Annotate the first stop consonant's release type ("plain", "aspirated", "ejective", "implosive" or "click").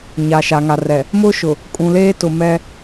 ejective